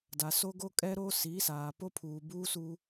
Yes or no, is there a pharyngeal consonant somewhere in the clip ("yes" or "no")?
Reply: no